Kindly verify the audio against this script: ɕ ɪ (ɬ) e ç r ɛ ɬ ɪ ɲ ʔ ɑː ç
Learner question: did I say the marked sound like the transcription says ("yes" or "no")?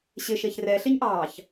no